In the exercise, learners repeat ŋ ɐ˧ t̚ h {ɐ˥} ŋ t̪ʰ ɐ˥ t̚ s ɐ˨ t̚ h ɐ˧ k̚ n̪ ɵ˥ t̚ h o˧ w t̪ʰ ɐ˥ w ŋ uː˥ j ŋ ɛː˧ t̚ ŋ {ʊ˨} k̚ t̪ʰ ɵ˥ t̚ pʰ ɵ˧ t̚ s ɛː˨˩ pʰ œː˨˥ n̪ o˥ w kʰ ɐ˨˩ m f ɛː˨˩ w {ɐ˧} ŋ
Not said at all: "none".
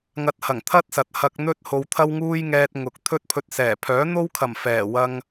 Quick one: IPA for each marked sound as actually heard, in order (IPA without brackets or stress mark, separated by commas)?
ɐ˨˩, ʊ˨, ɐ˧